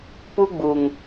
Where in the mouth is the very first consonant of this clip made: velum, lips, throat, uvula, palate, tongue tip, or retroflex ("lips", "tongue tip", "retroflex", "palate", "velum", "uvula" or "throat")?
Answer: lips